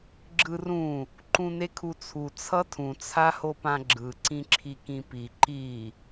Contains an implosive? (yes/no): no